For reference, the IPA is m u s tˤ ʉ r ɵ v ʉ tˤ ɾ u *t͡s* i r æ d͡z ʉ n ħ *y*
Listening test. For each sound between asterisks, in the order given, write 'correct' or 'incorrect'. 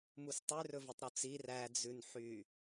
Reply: correct, correct

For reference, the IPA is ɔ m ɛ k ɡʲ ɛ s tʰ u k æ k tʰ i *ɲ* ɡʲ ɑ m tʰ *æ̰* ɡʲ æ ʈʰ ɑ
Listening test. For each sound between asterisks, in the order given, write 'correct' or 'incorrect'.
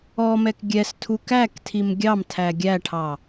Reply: incorrect: m, incorrect: æ

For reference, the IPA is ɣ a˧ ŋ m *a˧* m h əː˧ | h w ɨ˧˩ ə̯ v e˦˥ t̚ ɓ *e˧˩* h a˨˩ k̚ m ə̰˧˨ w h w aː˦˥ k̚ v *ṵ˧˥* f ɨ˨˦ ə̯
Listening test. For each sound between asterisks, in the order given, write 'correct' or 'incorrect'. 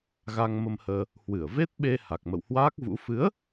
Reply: incorrect: ə˧, incorrect: e˧, correct

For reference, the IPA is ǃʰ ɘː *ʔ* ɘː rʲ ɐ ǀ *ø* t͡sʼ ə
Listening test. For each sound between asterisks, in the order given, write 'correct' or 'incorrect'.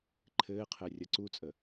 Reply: incorrect: qʰ, incorrect: u

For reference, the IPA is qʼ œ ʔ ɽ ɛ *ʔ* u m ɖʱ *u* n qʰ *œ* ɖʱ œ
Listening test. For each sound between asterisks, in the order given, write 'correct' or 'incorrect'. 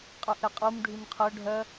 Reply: incorrect: qʼ, incorrect: y, correct

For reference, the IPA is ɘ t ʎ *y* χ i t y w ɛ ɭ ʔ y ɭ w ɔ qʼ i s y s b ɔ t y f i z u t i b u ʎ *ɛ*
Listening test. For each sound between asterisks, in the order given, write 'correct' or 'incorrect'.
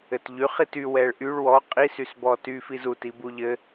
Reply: correct, incorrect: ɘ

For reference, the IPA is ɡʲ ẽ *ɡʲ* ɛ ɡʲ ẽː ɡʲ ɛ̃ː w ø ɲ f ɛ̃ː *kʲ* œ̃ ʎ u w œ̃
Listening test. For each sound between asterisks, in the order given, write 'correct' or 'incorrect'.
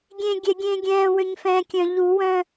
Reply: correct, correct

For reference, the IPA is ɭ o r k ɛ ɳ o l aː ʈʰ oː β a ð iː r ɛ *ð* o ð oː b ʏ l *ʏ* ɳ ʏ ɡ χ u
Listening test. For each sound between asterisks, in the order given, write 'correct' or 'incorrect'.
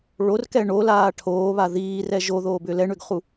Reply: incorrect: ʒ, incorrect: ɛ

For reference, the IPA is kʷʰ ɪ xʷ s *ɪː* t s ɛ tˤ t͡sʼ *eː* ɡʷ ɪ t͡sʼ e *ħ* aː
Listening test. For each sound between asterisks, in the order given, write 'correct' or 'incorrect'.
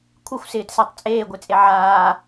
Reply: correct, correct, incorrect: ʕ

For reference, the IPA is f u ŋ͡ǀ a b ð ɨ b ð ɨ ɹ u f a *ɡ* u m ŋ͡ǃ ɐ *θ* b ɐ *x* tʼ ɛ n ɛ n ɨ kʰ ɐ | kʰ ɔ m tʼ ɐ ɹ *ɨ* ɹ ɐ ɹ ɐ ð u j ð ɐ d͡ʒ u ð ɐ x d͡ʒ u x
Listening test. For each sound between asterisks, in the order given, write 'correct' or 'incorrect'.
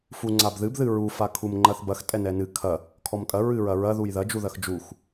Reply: incorrect: kʰ, correct, correct, correct

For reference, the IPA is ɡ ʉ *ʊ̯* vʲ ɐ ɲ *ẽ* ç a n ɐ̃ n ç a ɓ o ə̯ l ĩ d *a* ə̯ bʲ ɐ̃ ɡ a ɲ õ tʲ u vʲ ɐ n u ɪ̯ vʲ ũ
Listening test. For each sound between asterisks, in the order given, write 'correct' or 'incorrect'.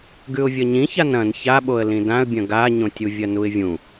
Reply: correct, incorrect: ĩ, incorrect: ã

